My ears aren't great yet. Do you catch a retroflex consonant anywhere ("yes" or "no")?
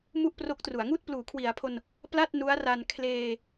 no